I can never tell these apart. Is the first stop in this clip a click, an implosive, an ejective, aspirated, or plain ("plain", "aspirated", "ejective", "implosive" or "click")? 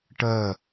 plain